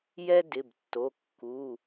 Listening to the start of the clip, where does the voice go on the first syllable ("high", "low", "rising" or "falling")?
high